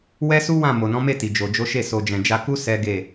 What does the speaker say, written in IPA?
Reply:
w ɛ˦ s u˦ w ã˦˨ m o˨ n ɔ̃˨˦ m e˦˨ t i˨ d͡ʒ o˨ d͡ʒ o˨˦ ʃ e˦˨ s o˨ d͡ʒ ɛ̃˨ d͡ʒ a˧ k u˦ s ɛ˦ ɡ e˦˨

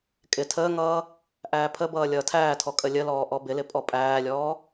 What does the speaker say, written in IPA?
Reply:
kʼ ɪ tʰ əː ŋ ʌː | ʔ æː pʰ ə b ʌː lʲ ʌː tʰ æː tʰ ɔ kʼ ə lʲ ə l ɔː ʔ ɔ b ɪ l ɪ pʼ ɔ pʼ æː lʲ ɔː

